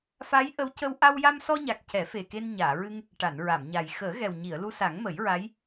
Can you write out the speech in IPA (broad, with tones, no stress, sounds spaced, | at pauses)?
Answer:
f a˧˥ j ʔ ə˧˥ w c ə˧ w ʔ a˧ w j a˧ m s ɔ˧ ɲ a˨˩ k̚ c ɛ˨˩˦ f e˨˩ k e˧ n ɲ aː˨˩˨ ɹ ɨ˧ ŋ | ʈ a˨˩˨ n ɹ a˨˩˨ m ɲ a˨˩ j x əː˨˩˦ ɣ ɛ˨˩ w ɲ i˨˩˨ ə̯ l u˧ s a˨˩˦ ŋ m ə˨˩˦ j ɹ a˧˥ j